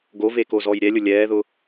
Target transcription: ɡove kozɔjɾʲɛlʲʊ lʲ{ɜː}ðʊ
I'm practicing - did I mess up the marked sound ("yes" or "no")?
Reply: yes